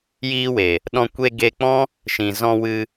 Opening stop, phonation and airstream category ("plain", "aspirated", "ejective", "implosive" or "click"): implosive